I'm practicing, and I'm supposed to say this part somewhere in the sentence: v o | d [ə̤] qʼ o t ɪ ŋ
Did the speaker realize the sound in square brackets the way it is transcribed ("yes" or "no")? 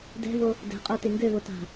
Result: no